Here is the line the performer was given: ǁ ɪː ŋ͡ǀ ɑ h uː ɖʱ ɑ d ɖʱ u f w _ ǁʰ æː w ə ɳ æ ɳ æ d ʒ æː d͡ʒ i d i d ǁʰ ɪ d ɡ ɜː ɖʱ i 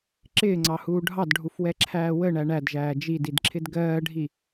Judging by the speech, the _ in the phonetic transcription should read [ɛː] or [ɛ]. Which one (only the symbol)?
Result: ɛ